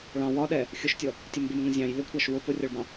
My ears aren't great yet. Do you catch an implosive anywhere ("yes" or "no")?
yes